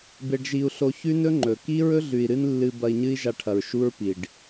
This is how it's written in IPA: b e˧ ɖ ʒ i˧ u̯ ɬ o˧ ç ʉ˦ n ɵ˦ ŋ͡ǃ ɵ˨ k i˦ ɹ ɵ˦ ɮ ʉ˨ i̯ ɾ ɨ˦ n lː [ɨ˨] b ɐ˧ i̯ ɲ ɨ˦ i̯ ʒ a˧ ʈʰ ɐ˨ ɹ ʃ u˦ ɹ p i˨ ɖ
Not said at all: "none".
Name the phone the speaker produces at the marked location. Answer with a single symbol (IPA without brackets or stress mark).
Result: ɨ˧